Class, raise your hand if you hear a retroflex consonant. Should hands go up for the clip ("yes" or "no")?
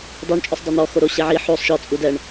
yes